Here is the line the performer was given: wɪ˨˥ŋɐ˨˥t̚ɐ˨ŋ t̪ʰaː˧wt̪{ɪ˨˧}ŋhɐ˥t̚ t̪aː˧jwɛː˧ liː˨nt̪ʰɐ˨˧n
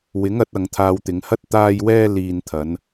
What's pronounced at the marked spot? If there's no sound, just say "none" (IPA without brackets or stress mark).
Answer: ɪ˨˧